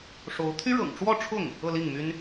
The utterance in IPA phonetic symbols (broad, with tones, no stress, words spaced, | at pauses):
ʂo˧˥ʊ̯ t̪ʰy˥ɻɤ̰˨˩ŋʈ͡ʂwɔ˥˧ ʈ͡ʂʰʊ˥˩ŋ | ɤ˥˧li˥˩ŋmy˥n